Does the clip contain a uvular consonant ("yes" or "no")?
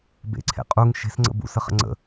yes